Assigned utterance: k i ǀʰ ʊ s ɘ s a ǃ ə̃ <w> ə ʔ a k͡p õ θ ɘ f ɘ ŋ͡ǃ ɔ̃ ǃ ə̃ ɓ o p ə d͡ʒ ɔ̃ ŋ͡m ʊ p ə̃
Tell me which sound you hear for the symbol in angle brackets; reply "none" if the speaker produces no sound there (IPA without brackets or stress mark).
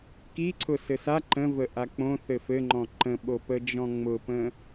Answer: v